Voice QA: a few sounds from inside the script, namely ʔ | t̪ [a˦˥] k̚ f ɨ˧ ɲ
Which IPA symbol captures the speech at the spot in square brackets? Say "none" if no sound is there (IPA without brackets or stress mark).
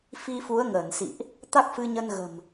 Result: a˦˥